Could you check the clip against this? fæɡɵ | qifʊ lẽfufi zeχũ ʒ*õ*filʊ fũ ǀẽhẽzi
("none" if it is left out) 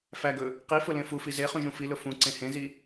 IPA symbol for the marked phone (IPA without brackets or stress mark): ũ